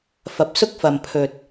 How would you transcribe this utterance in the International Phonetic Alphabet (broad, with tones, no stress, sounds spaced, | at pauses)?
f ɐ˨ p̚ s ʊ˥ k̚ f ɐ˨ m pʰ ɵ˨ t̚